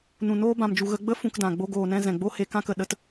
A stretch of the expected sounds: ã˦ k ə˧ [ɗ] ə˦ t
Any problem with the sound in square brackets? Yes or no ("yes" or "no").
no